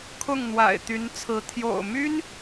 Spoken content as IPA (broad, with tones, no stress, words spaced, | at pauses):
kʰʊ˥˨ŋn̪wa̰˨˩ɪ̯t̪y˨˦nt͡sʰɹ̩˨˦ t̪ʰjo̰˨˩ʊ̯ my˦n